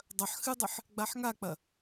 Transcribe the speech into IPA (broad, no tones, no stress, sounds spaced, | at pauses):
dˤ ɐ ħ x ɨ dˤ ɨ ħ | ɡ͡b a ħ ŋ a k͡p ɐ